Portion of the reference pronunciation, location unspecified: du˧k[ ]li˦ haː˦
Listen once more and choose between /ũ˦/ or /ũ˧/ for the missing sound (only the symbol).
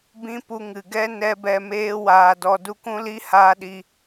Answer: ũ˦